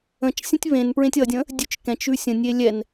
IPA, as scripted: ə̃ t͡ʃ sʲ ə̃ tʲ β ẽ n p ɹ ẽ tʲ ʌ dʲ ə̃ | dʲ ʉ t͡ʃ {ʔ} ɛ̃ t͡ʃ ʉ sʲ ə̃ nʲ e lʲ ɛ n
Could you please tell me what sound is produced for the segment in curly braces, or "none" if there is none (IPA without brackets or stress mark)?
k